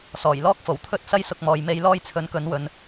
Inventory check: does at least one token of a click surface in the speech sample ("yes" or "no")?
no